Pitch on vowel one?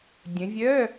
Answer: rising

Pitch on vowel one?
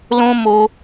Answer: high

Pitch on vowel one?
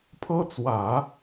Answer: high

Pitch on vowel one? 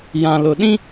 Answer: low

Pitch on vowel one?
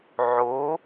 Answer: rising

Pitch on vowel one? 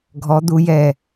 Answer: rising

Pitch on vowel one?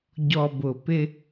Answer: low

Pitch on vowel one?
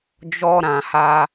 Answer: high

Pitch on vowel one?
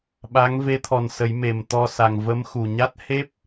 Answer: rising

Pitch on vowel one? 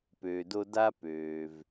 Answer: low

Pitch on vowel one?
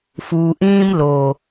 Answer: low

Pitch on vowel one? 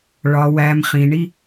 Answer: low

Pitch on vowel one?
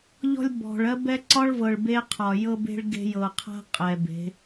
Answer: high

